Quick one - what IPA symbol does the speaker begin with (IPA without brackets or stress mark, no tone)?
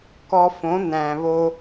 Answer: k